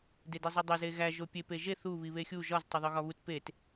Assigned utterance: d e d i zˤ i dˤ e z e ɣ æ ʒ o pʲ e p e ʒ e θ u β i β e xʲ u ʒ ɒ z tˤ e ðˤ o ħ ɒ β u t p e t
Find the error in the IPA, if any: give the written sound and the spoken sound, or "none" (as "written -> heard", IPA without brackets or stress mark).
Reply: ħ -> ɣ